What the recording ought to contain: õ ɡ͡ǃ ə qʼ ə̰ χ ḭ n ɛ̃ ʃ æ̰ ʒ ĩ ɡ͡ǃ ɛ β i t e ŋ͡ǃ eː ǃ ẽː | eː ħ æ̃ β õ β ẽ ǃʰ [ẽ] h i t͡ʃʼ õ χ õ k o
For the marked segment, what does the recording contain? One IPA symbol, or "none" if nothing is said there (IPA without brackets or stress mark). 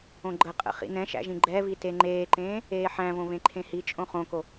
ẽ